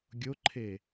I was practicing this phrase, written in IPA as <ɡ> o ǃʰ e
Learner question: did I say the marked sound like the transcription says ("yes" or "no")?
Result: no